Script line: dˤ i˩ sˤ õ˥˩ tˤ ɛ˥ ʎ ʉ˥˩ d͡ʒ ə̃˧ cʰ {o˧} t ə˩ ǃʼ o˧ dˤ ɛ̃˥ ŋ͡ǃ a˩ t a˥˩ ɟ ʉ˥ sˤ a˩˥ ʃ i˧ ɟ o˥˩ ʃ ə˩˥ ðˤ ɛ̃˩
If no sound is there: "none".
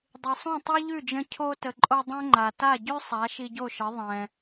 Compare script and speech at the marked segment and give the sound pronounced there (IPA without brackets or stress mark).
o˧